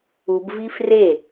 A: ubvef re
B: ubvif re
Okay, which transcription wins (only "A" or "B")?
B